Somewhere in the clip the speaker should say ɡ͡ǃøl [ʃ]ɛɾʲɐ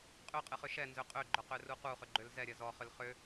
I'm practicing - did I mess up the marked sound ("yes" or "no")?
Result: yes